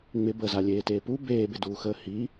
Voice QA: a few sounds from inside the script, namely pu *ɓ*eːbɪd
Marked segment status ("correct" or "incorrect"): incorrect